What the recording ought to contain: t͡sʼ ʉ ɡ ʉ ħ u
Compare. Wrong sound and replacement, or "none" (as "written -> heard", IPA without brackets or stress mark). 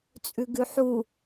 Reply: none